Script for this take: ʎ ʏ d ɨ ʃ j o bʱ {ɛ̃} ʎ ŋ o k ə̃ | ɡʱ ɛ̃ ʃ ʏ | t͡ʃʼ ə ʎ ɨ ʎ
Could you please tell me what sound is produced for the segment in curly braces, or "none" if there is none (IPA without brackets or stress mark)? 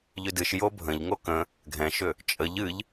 ə̃